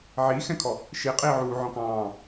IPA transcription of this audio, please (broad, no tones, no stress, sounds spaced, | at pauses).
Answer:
ʕ iː x ɛ̃ kʰ ɔ | ʃ i qʼ iː ʕ uː ʕ ɔ̃ k ɑ̃ː